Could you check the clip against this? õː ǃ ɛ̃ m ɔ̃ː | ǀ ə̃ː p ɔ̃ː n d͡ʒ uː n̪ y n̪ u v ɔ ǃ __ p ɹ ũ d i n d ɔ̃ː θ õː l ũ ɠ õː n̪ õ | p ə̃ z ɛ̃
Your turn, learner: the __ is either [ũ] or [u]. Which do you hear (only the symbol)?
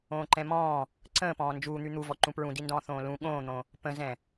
ũ